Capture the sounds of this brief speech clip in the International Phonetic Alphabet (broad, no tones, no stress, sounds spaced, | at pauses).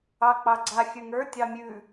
ɑ k͡p ɑ ɡ͡ǀ a xʲ ʉ ŋ ə˞ tʲ ɑ mʲ ʉ